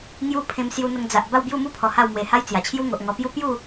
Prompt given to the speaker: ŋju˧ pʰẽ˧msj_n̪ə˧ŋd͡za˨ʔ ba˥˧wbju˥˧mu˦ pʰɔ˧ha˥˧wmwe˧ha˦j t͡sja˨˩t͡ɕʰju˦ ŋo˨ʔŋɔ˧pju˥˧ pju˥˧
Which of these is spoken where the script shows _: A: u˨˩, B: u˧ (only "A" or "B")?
B